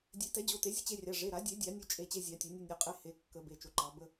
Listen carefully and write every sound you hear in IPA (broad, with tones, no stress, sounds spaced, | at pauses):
dʲ e˨˩˦ t ɛ˨˩˦ d͡ʑ o˩˧˩ t e˨˩˦ zʲ ə˧ t͡ɕ e˧ rʲ ɑ˩˧˩ ʐ e˩˧˩ ɾ a˨˩˦ dʲ e˨˩˦ dʲ a˨˩˦ nʲ o˧ t͡ʃʼ e˩˧˩ t͡ɕ e˧ zʲ ɑ˨˩˦ tʲ ɛ˨˩˦ nʲ o˧ nʲ ɔ˩˧˩ qʼ e˧ h e˩˧˩ kː ə˨˩˦ b e˩˧˩ t͡ʃ o˨˩˦ ǃ ɑ˨˩˦ b ə˩˧˩